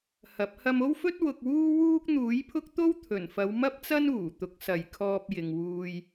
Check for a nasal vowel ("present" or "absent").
absent